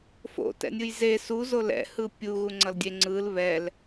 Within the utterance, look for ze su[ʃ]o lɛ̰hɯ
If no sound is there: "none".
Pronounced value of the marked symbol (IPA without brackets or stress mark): z